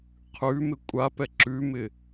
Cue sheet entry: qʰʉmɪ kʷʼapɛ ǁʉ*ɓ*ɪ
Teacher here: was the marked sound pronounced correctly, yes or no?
no